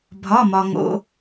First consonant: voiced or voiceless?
voiced